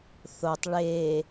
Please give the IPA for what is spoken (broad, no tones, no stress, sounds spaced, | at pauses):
θ o tˤ ɭ e